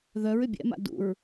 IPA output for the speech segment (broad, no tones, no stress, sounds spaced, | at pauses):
ð œ ɹ ʏ bʲ ɛ̰ m a̰ d ṵ ɹ